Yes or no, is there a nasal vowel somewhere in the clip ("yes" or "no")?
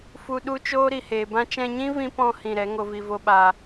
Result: yes